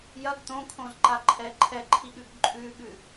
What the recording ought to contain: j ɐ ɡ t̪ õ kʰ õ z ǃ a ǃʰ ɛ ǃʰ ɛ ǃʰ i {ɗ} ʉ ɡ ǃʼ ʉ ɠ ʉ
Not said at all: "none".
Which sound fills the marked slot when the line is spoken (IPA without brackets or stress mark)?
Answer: ɠ